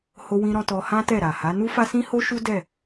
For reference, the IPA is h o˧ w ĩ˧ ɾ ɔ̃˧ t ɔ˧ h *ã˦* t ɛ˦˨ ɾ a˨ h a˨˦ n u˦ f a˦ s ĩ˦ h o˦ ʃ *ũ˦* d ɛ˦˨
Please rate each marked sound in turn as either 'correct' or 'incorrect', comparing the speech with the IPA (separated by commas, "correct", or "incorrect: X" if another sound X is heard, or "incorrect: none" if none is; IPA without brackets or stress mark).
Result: correct, incorrect: u˦